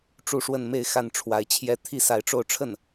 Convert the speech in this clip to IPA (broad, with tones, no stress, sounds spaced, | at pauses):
ʈ͡ʂ u˥˧ ʂ w ə˥˧ n m e˥˧ ɪ̯ x a˥˩ n ʈ͡ʂʰ w a˧˥ ɪ̯ t͡ɕʰ j ɛ˥ t̪ʰ i˥ s a˧˥ ɪ̯ ʈ͡ʂ o˥˧ ʊ̯ ʈ͡ʂʰ ə˥˩ n